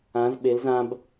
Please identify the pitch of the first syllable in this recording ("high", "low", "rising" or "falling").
rising